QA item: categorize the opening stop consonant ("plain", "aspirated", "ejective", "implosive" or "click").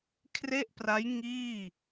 aspirated